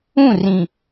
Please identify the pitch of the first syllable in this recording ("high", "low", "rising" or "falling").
falling